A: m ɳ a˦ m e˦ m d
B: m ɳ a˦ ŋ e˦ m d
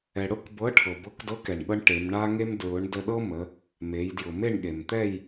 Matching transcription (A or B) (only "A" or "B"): B